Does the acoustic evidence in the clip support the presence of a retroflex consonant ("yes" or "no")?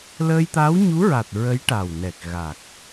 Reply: yes